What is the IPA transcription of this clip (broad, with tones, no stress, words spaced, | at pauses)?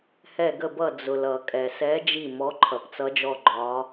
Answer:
hɛ˧˩ɡə˧˩bʌ˧˩ d͡zʊ˩ lʌ˩kʼɛ˩sɛ˨˦ d͡ʒi˧˩mɔ˨˦ ǃʰʌ˩p t͡sʌ˨˦d͡ʒɔ˧˩ɡ͡ǃɒ˨˦